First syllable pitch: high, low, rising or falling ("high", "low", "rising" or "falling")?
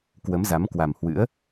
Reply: rising